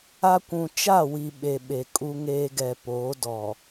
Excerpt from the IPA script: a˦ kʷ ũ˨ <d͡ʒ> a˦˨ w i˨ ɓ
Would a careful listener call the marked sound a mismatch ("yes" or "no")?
yes